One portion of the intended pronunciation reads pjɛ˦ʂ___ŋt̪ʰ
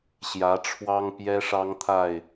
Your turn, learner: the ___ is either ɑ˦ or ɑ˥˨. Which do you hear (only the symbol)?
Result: ɑ˦